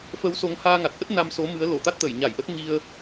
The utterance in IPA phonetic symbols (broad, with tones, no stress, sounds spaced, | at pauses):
f ə˨˦ w s o˨˦ ŋ h aː˧ ŋ a˨˩ t̚ ʔ ə˦˥ t̚ n a˧ m s o˨˦ m ɨ˨˦ ə̯ l o˧˩ t̪ a˦˥ t̚ t̪ ə˧˩ j ɲ a˧˩ j ʔ ə˦˥ t̚ ŋ i˧ ə̯